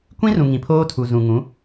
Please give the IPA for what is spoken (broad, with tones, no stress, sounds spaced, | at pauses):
kʷ ĩ˦ r ũ˨ ŋ ĩ˨ pʰ oː˦ tʰ u˨ z ũ˨ ŋ ũ˨˦